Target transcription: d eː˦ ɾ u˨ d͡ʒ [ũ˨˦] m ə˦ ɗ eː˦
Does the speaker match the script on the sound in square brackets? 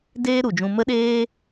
no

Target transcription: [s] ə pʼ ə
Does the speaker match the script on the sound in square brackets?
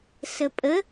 yes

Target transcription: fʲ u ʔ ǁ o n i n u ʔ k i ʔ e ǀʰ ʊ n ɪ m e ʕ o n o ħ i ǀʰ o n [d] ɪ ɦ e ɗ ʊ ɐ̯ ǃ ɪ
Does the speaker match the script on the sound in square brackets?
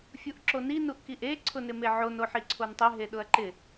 no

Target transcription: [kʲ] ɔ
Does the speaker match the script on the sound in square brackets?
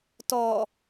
no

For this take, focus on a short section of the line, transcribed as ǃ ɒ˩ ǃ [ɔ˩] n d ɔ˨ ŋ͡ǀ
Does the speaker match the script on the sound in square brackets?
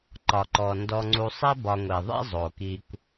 yes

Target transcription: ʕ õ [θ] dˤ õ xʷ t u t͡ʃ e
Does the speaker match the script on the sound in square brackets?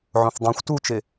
yes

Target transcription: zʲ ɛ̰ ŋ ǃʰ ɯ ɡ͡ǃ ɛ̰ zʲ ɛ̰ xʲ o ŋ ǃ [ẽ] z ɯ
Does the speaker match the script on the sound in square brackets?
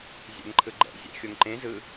yes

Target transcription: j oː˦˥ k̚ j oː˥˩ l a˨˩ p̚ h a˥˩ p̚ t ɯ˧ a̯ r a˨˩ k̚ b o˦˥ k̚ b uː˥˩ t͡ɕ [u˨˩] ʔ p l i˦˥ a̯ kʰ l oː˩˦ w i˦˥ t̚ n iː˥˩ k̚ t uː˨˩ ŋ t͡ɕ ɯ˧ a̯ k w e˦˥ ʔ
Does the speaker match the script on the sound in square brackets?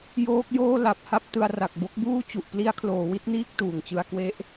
yes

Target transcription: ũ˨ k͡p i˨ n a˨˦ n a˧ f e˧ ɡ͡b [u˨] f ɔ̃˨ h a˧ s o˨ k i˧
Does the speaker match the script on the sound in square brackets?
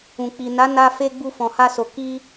no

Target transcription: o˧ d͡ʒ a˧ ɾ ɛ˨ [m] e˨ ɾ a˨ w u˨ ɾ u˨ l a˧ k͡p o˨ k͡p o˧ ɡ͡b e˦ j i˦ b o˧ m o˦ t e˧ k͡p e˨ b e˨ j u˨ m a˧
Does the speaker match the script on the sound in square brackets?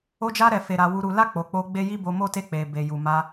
no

